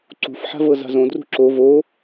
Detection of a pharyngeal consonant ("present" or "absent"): present